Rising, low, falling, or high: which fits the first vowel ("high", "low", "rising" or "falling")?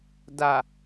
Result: low